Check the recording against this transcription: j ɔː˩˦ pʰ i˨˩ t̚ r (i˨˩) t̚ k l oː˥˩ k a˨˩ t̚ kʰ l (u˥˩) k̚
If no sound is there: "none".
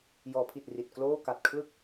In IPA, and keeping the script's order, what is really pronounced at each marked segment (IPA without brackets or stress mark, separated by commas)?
i˨˩, ɯ˥˩